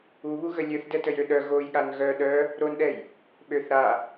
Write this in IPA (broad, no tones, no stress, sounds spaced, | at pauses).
u β u ɣ ə lʲ ø θ d ɛ t ə j ø ɗ œ ɣ o j ɠ a n ɣ œ ɗ œ | ɾ o n ɗ ɛ j | ɓ ø θ ɾ a